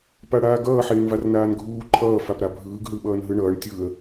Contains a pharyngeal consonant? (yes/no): yes